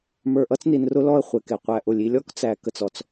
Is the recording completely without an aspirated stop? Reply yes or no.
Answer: yes